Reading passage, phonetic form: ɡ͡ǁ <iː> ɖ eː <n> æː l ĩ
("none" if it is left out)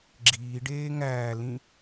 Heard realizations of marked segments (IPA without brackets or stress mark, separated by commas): iː, ŋ